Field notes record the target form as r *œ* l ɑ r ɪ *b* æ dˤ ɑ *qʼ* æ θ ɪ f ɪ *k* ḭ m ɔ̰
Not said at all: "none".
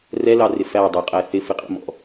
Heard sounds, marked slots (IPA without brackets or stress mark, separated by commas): ɛ, f, qʼ, qʼ